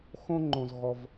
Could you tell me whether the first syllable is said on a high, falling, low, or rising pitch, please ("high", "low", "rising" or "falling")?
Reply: high